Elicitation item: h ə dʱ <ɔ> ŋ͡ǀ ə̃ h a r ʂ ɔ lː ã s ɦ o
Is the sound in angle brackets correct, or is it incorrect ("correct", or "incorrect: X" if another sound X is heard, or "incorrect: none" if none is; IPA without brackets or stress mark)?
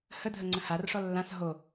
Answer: incorrect: ə